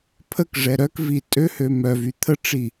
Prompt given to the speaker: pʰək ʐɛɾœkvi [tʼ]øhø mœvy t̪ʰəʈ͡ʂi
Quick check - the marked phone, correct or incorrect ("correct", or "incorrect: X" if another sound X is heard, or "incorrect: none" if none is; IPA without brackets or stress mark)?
correct